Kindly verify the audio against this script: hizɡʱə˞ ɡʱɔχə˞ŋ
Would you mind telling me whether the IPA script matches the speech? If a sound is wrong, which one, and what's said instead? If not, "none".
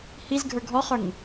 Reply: none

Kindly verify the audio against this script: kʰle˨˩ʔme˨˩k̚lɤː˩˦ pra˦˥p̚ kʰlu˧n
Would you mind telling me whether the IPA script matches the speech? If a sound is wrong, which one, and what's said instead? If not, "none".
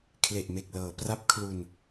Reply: none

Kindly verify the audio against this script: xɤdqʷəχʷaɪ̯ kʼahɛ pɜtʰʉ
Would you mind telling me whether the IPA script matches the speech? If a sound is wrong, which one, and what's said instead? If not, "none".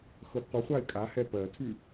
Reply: none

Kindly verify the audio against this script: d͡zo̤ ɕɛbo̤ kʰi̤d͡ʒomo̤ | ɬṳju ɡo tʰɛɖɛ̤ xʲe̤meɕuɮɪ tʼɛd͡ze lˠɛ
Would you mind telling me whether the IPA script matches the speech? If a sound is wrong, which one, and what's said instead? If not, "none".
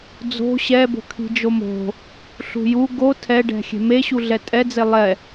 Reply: ɪ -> ɛ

